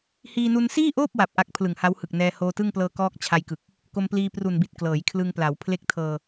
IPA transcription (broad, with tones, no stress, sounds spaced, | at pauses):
h iː˧ n u˧ n s iː˥˩ ʔ oː˥˩ p̚ w a˨˩ p̚ ʔ a˦˥ k̚ pʰ l ɯ˨˩ ŋ h a˦˥ w h ɯ˨˩ k̚ n ɛː˧ h oː˧ t ɯ˥˩ ŋ p l ɤː˧ k ɔː˥˩ k̚ t͡ɕʰ a˧ j k ɯ˨˩ k̚ | k o˧ m p l iː˧ p r u˨˩ n b i˨˩ t̚ k l ɤː˩˦ j kʰ l ɯ˧ ŋ p l a˩˦ w pʰ l e˦˥ k̚ tʰ ɤː˧